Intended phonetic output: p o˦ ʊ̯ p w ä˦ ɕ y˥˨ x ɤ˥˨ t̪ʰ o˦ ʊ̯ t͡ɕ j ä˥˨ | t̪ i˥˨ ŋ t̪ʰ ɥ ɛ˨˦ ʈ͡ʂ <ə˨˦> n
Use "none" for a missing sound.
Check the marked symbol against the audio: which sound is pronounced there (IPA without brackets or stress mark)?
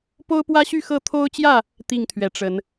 ə˨˦